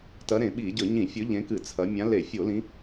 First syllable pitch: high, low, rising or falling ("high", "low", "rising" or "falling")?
rising